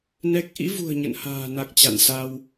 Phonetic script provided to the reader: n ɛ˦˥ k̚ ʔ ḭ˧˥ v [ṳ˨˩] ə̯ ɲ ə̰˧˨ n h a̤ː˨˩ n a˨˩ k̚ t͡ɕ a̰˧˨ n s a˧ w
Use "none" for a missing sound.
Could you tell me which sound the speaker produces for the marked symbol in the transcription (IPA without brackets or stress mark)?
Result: ṳ˨˩